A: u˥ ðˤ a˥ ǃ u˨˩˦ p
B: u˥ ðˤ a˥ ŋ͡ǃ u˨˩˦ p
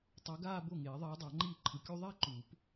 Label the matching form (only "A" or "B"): A